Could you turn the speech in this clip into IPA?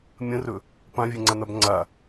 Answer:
mʲə̃rɵ | pãvʲeŋ͡ǀan̪ab ŋ͡ǀa

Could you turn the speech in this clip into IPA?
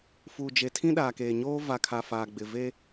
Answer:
fuː˨d͡ʒe˨ tʰĩ˦ɗaː˨keː˨ɲoː˦ va˨kʰa˨ faː˨ɡ͡bɪ˨ve˦

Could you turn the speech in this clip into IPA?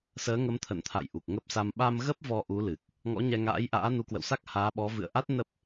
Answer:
səː˨˦ŋə˨˦mt̪ʰə̰˧˨nt̪ʰa̰˧˨j ʔu˨˩k̚ŋə˦˥p̚sa˧m ɓa˧mɣə˦˥p̚ vɔ˧ʔu˨˦lɨ˨˩k̚ | ŋɔ̰˧˥ɲɛ˧ŋa̰ː˧˥jʔa̰ː˧˥ nu˨˦kwə̰˧˨wsa˦˥k̚ haː˨˦ɓɔ˨˦ vɨ̰˧˨ə̯ʔa˦˥t̚ nə˦˥p̚

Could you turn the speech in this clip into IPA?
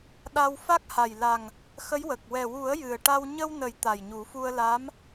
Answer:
ɗa˧w fa˦˥k̚ha˨˩jla˨˩ŋ | xə˧˥jwə˨˩k̚ wɛ˨˩wu˨˩˦ə̯ jɨ˨˩ə̯ʈa˧w ɲə˧wnə˨˩˦j t̪a˨˩jɲu˨˩˦fu˧ə̯la˧˥m

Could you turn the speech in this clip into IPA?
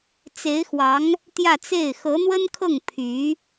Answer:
t͡se˧˥ɪ̯xwɑ˧˥ŋ | t̪jä˥˧t͡se˥˩ɪ̯ xɤ˧˥n̪wə˥nkʰɤ˥˩ŋ pʰy˧˥

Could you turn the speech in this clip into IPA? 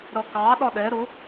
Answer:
ɾʌkɑ ɗɒɗɛ ɾʊ

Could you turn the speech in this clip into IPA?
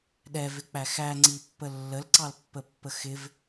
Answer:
ɗɛvɪk͡pæ xæŋ͡ǀipːə lːəlǀɑlpːəpːə xɪv

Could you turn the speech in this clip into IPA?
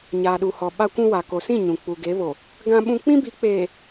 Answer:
ɲaː˨ɗu˨hɔ˨ ɓa˦kʷũ˦wa˨ ko˨sĩ˦˨ ɲũ˨ k͡pu˨ɡe˨˦βo˨ | ɡã˦ɓũ˦ k͡pĩ˦bi˨˦k͡peː˨

